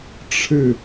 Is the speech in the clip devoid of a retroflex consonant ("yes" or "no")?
no